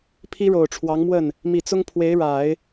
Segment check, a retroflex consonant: present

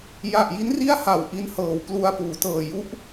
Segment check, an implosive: absent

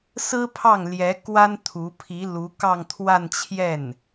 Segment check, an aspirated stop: present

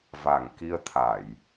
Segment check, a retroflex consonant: absent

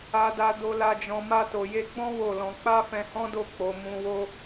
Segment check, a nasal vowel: present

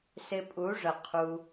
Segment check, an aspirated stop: present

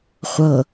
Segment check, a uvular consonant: present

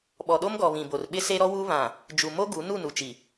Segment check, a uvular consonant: absent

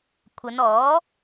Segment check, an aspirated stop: present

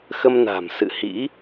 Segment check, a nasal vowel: absent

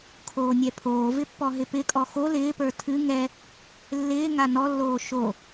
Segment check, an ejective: present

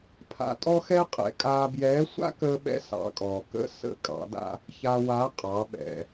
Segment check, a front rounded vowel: absent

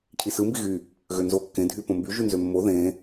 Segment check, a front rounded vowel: present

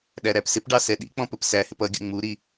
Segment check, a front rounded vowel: absent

